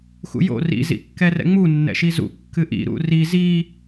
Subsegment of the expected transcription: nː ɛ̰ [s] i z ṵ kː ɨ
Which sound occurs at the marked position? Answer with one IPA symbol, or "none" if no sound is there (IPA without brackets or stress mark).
ʃ